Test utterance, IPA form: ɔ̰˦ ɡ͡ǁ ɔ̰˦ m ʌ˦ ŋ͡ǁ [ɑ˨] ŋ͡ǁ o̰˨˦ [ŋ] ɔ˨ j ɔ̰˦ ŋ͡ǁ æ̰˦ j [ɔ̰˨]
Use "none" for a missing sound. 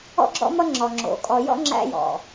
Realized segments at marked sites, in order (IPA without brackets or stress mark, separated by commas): ɔ˨, kʼ, ɔ̰˨